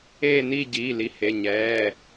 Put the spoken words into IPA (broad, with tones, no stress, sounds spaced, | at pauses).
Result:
eː˥˧ n i˥˧ ɟ iː˩˧˩ l i˩˧˩ h e˩˧˩ ɲ ɛː˩˧˩